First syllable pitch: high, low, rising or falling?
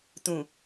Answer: low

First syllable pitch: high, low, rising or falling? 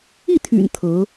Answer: falling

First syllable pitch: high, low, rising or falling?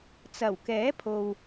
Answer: low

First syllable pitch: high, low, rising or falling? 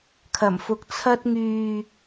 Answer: low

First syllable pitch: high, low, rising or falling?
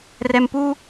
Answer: low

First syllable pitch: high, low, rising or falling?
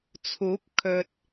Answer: rising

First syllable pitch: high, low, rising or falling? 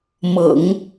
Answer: low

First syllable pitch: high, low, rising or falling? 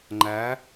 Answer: rising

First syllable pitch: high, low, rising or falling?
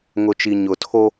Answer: low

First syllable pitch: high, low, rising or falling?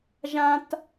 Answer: high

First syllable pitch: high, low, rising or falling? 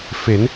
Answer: rising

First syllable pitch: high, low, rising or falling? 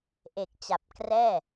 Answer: low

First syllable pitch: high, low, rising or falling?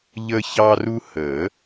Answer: high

